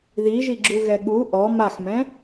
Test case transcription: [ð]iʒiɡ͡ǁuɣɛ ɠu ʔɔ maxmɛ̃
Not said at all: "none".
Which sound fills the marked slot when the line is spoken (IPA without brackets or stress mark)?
ð